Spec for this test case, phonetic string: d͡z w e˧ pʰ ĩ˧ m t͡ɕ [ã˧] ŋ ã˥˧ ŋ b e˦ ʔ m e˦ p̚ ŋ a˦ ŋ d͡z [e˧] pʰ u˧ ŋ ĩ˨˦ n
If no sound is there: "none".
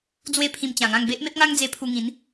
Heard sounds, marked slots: ã˨˩, e˧

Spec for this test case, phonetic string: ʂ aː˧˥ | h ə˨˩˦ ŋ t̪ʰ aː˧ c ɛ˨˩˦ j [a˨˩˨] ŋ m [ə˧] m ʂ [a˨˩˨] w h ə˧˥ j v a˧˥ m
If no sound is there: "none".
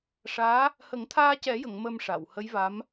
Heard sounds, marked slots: ə˨˩˨, ə˧, a˨˩˨

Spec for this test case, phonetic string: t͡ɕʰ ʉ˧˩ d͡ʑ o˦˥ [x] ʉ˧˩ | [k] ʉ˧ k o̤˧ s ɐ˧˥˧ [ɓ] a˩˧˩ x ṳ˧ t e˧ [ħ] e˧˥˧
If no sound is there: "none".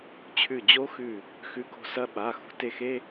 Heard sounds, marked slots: x, x, ɓ, x

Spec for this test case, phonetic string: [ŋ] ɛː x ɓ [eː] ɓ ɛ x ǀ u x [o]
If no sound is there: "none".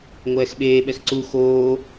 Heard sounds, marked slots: ŋʷ, eː, oː

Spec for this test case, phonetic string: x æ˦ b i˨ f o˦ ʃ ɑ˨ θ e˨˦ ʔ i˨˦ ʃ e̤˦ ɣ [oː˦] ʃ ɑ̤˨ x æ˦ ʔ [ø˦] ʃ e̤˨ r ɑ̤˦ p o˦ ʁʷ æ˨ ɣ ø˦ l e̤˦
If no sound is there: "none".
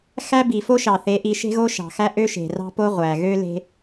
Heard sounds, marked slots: o˦, ø˦

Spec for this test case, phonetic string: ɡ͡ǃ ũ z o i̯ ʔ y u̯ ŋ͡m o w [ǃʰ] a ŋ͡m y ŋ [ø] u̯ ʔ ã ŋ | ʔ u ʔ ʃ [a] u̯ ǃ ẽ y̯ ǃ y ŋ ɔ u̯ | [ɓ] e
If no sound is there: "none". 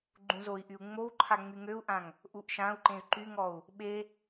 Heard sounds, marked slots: ǃʰ, ø, ã, ɓ

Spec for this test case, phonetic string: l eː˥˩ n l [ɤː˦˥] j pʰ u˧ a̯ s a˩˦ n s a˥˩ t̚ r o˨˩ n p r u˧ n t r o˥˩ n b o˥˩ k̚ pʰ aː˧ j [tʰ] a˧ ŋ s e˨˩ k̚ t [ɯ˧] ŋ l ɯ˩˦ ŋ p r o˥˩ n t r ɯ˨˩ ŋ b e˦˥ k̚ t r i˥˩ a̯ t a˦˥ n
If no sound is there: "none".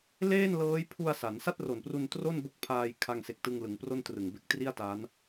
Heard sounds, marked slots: ɤː˦˥, kʰ, ɯ˧

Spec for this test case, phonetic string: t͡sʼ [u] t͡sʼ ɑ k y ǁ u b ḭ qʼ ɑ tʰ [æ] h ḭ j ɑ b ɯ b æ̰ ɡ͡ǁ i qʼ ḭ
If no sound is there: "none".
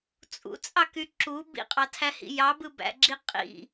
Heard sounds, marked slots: ṵ, æ

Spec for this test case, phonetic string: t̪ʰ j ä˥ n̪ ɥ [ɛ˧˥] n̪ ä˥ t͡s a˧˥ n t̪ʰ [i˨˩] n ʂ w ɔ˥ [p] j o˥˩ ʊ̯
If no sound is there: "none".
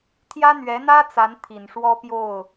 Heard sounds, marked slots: ɛ˧˥, i˨˩, p

